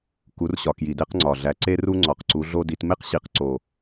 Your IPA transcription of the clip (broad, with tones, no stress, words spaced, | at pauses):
ku˨˦rɕɒ˨˩ kji˨˩de˦qŋ͡ǀɒ˨˩ɮæ˨˦ ǀe˦ru˦ ŋ͡ǀɒ˨˩qǀu˨˦ɮo˦di˨˦t me˦qɕi˨˩q ǀo˨˩